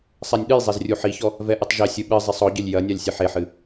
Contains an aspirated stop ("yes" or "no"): no